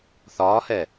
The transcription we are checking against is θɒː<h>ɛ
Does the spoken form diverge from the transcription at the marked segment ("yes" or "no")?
no